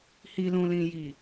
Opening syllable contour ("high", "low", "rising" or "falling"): low